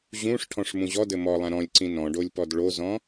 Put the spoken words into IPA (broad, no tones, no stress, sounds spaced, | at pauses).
ʑ ũ ʂ ʈʰ ɔ̃ ʂ m ũ ʑ ɔ d ɘ m ɔ lˠ ã ɾ ɔ̃ lʲ ǀ ĩ n ɔ̃ ɖ o lʲ p ɔ d ɭ o z ɔ̃